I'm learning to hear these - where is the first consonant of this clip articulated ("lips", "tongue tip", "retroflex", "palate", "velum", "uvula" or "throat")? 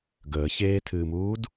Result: velum